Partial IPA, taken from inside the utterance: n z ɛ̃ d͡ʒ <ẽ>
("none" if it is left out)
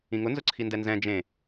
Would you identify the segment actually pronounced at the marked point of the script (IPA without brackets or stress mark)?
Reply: ẽ